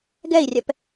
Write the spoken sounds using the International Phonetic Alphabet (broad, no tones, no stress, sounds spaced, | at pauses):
ɡ ɛ i̯ rʲ ɛ p